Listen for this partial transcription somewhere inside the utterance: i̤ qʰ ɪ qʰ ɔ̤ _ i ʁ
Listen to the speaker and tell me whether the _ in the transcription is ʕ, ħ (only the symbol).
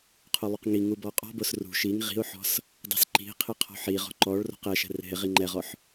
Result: ħ